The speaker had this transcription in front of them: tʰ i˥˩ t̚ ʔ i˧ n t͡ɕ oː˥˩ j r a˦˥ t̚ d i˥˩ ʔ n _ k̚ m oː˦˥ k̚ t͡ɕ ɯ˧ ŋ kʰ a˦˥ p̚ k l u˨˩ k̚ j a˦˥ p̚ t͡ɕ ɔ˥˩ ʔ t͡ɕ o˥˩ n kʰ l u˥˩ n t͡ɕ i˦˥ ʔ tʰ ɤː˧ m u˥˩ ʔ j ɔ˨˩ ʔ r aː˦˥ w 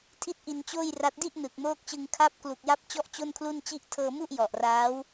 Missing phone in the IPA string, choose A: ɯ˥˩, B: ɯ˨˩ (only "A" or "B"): B